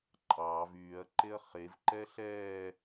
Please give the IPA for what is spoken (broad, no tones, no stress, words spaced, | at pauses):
ǃʼɑːv yːɐ̯ǃeɐ̯ χevǃɛ ɬɛː